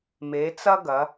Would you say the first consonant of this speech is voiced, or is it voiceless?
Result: voiced